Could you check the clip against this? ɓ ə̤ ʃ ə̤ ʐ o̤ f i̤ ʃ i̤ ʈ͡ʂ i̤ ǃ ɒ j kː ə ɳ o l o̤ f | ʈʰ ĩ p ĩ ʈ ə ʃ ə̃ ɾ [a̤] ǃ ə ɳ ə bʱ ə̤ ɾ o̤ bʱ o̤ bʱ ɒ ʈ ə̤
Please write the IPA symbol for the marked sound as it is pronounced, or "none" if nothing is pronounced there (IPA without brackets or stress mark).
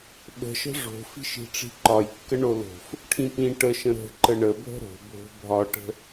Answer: ə̤